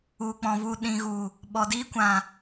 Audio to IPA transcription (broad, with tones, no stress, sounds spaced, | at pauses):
u˨ k͡p ɔ̃˨ v u˨ ɗ ĩ˨ ɣ u˨ | ɓ ɔ˨ d iː˧ kʷ ã˨